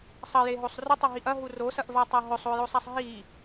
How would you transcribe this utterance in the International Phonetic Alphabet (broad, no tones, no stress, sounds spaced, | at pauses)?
sˤ ɐ j e ɦ o sˤ r ɵ tˤ ɐ ɦ i ʔ ɐ ɦ u r o s ɐ ʔ v a tˤ a ɦ ɵ sˤ o j o sˤ a sˤ ɦ i